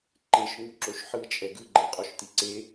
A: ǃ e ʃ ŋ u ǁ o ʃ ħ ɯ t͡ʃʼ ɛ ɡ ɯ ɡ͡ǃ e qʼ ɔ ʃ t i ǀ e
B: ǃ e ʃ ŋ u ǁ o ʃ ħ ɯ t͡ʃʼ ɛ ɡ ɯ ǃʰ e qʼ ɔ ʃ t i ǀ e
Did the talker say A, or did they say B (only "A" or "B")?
A